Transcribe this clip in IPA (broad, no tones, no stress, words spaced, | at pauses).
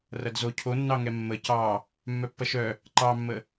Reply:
rɐdzo cʰonːɑŋɛ mːə cɑ | mːœpːɐʃœ | ǃɑmːə